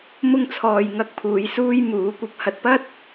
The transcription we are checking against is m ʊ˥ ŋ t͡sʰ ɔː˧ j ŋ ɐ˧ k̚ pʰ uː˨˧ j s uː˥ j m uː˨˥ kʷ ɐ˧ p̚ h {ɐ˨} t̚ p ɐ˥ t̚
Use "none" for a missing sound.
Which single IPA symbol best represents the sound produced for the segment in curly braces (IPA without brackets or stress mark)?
ɐ˧